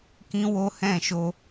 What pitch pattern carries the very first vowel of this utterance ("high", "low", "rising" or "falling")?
high